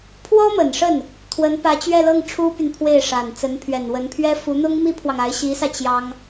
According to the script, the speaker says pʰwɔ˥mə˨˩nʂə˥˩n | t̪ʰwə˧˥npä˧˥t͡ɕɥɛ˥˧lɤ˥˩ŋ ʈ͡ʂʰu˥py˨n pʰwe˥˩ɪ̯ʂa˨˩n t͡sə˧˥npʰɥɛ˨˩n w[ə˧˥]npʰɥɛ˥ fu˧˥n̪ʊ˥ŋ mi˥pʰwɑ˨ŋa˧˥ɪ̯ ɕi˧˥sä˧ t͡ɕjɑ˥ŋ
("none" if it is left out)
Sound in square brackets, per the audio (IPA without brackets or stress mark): ə˧˥